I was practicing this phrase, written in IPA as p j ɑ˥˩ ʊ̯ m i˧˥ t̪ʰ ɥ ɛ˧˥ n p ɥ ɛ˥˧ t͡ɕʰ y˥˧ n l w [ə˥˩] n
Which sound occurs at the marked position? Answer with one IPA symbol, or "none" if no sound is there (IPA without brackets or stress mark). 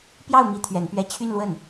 ə˥˩